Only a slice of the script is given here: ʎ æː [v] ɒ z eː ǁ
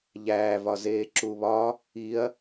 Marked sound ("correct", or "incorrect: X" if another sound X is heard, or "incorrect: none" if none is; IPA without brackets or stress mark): correct